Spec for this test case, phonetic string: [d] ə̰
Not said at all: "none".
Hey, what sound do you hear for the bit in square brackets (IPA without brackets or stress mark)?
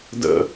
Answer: d